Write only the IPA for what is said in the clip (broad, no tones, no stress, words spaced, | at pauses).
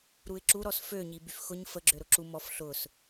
ɾuɪ̯ǁuɾɔs føɲi byfxʊɲ fəɡ͡ǁø ɾʊǁu mɔf ɬʊs